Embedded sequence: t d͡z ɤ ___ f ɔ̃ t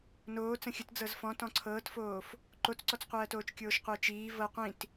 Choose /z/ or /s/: z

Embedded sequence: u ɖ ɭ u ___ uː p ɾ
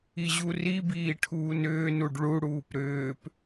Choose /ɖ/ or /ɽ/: ɽ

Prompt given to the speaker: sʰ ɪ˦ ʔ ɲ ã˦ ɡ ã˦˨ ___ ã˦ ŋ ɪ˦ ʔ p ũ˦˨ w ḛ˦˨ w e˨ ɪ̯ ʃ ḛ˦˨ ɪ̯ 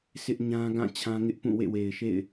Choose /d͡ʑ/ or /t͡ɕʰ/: t͡ɕʰ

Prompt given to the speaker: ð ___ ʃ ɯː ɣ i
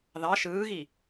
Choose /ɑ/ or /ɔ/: ɑ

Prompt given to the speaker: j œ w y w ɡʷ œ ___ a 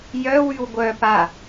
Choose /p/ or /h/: p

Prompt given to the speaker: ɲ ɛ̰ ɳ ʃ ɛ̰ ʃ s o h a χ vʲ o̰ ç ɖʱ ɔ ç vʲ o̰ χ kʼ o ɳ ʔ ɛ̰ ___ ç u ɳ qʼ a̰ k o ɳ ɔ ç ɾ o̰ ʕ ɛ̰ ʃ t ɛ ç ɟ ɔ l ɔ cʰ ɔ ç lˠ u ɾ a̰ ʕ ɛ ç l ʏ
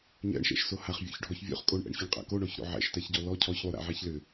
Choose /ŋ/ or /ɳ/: ɳ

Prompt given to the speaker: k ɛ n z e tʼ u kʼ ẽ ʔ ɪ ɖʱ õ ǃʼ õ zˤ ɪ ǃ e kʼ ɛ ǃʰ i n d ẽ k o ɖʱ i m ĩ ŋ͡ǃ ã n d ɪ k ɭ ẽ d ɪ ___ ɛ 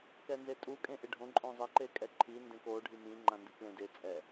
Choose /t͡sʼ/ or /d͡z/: t͡sʼ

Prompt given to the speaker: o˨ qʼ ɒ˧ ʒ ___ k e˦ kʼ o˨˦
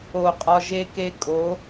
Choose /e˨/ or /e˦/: e˦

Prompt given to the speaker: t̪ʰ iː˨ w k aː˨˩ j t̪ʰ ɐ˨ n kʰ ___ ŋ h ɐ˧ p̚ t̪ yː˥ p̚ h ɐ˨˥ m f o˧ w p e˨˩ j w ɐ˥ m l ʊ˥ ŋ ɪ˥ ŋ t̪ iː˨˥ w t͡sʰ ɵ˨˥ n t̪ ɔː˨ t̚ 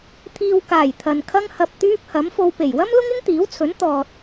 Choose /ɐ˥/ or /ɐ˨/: ɐ˥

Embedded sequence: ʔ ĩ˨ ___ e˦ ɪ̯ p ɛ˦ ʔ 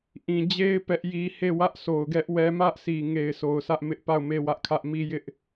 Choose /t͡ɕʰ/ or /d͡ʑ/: d͡ʑ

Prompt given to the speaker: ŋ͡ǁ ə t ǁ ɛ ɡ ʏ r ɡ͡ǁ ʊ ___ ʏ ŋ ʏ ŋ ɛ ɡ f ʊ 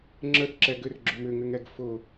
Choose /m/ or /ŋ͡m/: m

